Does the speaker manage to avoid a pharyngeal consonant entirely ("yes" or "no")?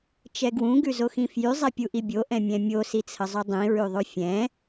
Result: yes